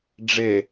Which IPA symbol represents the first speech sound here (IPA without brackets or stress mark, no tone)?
ɖ͡ʐ